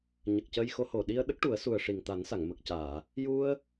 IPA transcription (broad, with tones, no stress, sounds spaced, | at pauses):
ɲ ə˨˩ k̚ c ə˧ j x o˧˥ h o˨˩ ɗ i˧ ə̯ ɗ ə˦˥ k̚ ʈ u˨˩˦ ə̯ s u˨˩ ə̯ ʂ i˨˩ ŋ t̪ a˨˩˦ n s a˨˩˨ ŋ m ə˨˩ k̚ c aː˨˩˨ | j u˧ ə̯